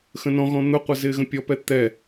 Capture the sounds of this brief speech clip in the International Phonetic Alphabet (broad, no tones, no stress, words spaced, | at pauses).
xə̃nɔ̃ɣɔ̃ n̪ʊqʷʌ zɪːɣə̃pʲɔpɛ t̪ɛ